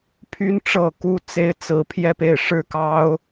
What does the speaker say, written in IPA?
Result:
pʰ y˥ n ʈ͡ʂ ɤ˥˩ k u˥ t͡s e˥ ɪ̯ t͡s ɹ̩˥ pʰ j ɛ˥˧ p e˥˩ ɪ̯ ʂ ɻ̩˥ k ɑ˥ ʊ̯

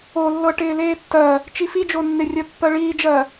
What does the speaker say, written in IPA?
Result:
o lː ɤ ʈ ɪː l eː tː ɜ | t͡ʃ i f i d͡ʒ o nː ɪ rʲ ɜ pː ɜ ɭ iː d͡ʒ ɜ

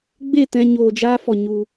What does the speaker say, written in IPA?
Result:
ɡ͡b e˦˨ t ɛ̃˧ ɲ oː˧ d͡ʒ aː˦ f ɔ˧ ɲ u˧

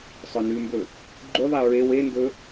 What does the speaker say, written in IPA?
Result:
sˤ ɵ n ʉ m b ɵ | ɡ͡ǃ u ðˤ i ɹ e w e n d ɵ

